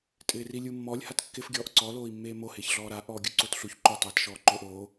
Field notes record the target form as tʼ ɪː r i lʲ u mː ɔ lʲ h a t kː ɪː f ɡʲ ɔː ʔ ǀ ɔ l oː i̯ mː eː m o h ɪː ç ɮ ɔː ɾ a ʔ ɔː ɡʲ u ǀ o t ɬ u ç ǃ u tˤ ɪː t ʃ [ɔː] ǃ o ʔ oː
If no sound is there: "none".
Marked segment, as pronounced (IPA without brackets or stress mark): ɔː